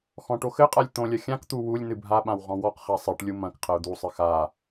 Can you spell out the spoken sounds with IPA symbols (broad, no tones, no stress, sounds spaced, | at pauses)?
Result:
x ɔ̃ ʈ o x ɘ qʼ a lʲ t̪ õ lʲ ɐ xʲ ã k t̪ u w u lʲ n ɨ bʱ a ɓ ã w ʁ ɔ̃ w ɔ q χ a sˤ ɨ ʈ lʲ u m ɐ̃ k qʰ ɐ ʊ̯ d̪ u sˤ ɨ x a